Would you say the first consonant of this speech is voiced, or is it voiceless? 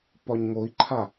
voiceless